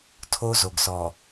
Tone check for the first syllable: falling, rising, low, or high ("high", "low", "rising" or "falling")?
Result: high